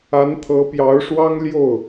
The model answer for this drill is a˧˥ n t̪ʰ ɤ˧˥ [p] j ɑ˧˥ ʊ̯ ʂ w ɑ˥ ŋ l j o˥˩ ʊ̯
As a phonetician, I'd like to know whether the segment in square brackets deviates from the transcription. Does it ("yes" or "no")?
no